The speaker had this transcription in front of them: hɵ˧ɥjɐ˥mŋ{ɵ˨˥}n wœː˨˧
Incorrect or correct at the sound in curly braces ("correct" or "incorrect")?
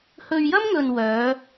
incorrect